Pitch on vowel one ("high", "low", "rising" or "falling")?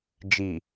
low